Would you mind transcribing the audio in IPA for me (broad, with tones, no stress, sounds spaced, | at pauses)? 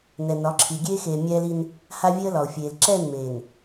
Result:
n ɛ˨ n ɒ˨˦ ǁʰ i˨ ɡʲ eː˦ x eː˨ mʲ ɛː˦ l i˦ n | h a˦ vʲ e˦ ə̯ l ɒ˨ ʊ̯ fʲ eː˨ l ǁ ɛː˦˨ n m eː˨ n